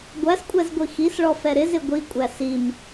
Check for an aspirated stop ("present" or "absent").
absent